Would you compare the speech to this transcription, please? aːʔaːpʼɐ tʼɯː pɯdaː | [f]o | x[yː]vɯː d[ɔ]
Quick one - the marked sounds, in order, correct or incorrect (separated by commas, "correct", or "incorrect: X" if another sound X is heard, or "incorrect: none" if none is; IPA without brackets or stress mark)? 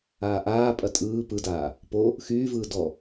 incorrect: p, correct, correct